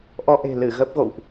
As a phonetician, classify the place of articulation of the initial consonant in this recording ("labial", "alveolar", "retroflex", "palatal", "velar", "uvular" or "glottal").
glottal